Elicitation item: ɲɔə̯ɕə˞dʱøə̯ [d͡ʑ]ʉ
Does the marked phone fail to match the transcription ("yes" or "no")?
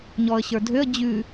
no